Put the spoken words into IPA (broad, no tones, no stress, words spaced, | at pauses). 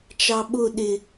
t͡ʃɑɓʊ ɗɪ